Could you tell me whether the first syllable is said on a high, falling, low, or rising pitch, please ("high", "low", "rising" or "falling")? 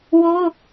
high